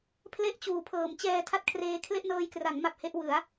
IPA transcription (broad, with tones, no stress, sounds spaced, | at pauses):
pʰ l e˥˩ ʔ t͡ɕ uː˨˩ pʰ ɤː˩˦ m t͡ɕ ɛː˧ tʰ a˥˩ t̚ kʰ r eː˦˥ kʰ l e˥˩ ʔ n ɤː˧ j k r a˩˦ ŋ m a˨˩ p̚ h e˥˩ ʔ w ɯ˩˦ a̯